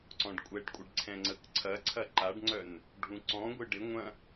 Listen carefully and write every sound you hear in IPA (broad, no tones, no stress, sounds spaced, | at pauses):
ǀ ɔ̃ ɖ kʷʼ ɛ ɖ kʷʼ ɪ ɖ ǀʰ ɛ̃ ŋ͡ǀ ə k ǀʰ ɐ ǀʰ ɐ ǃ a ɖ ŋ͡ǀ œ n | ɖʱ ũ ǀ ɔ̃ ɡʷ ɪ ɖ ɪ ŋʷ ɐ̃